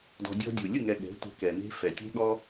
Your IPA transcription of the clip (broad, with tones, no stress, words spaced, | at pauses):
dɔ̤˧dʲɔ̤˦dʲu˨ lʲɯ˦˨ŋɛ˨ ɠɛ̤˨˦ tʷɛ̤˧kɛ˨ne̤˦ fɛ˨ tʲe̤˦ɠɔ˦